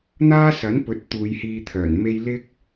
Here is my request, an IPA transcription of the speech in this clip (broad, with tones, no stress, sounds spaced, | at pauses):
n̪ aː˥ s ɐ˨˥ n p ɵ˨˥ t̚ t̪ uː˨˧ j h iː˧ t̪ʰ œː˨˩ n m e˧ j l ɪ˧ k̚